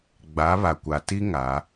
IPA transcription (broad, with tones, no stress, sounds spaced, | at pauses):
ɡ͡b a˨˦ β a˨ kʷ a˨ t i˦ ŋ a˨˦